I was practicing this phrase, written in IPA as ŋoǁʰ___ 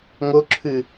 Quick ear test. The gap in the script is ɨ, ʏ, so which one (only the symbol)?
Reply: ɨ